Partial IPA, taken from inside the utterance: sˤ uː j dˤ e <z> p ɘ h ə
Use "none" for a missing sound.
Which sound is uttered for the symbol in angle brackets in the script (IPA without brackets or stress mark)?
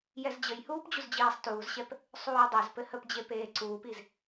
z